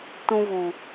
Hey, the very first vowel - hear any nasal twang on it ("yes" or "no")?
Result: yes